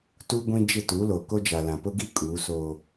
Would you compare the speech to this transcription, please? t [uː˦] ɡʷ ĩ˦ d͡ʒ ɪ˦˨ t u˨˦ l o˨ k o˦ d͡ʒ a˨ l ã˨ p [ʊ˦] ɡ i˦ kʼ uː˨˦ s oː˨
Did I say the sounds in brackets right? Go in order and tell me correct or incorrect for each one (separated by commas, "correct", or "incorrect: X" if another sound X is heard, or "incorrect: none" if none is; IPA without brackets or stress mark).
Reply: incorrect: u˦, correct